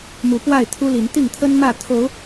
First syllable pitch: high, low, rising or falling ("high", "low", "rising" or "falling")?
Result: rising